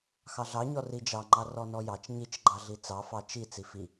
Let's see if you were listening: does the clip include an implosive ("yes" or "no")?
no